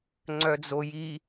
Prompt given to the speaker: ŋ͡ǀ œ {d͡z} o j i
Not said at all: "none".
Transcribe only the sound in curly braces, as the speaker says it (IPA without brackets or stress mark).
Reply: d͡z